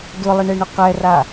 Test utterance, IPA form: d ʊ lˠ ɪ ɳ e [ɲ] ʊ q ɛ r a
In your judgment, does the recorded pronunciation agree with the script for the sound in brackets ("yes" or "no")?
no